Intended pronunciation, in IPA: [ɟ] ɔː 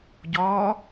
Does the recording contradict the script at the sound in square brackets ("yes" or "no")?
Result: no